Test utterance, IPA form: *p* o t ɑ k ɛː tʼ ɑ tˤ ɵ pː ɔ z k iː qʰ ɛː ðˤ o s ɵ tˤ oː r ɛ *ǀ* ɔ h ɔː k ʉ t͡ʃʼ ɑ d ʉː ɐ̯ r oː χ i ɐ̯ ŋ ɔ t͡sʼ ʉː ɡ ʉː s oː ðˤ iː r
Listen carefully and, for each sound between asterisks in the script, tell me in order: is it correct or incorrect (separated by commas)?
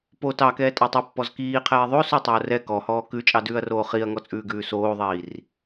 correct, incorrect